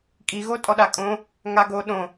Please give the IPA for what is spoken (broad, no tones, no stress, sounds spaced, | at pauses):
kʼ i ɣ o tʼ ɔ ɗ a kʼ õ | ŋ a ɡ o ɗ õ